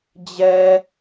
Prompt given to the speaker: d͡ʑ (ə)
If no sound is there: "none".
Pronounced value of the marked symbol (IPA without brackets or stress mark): ɛ